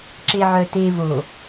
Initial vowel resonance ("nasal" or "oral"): oral